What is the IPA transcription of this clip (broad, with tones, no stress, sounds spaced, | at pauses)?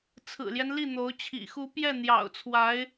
t͡sʰ ɹ̩˨˩ l j ɛ˦ n l i˥˩ n̪ o˧˥ ʊ̯ t͡ɕʰ ḭ˨˩ x u˧˥ p j ɛ˥˩ n̪ j ɑ̰˨˩ ʊ̯ t͡sʰ w a˧˥ ɪ̯